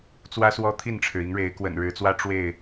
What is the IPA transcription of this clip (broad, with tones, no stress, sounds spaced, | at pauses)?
t͡s w ä˦ s w ɔ˦ t̪ʰ i˥˨ n ʈ͡ʂʰ ɻ̩˩ i˨˦ ŋ ɻ e˨˦ ɪ̯ k w ə̰˨˩ n ɻ ɻ̩˨˦ t͡s w ä˦ ʈ͡ʂ w e˥˨ ɪ̯